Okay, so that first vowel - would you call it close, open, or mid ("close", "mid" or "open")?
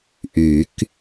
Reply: close